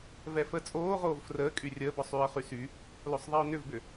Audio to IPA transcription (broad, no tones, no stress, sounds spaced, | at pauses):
v ɛ f ə t͡sʼ oː ʁ oː v f r əː kʼ y rʲ əː b ɔ sˤ yː ə̯ χ y s y | l o sˤ ðˤ i ʊ̯ n ʏ v b ʏ